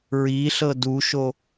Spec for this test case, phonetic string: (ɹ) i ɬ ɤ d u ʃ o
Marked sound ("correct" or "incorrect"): correct